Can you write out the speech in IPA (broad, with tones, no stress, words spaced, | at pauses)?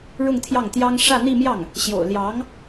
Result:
ɻʊ˥˧ŋt̪ʰjɑ˥˩ŋt̪jɑ˥ŋ ʂä˥˧n̪i˥˧mjɑ˥˩ŋ | ɕjo̰˨˩ʊ̯ ljɑ˧˥ŋ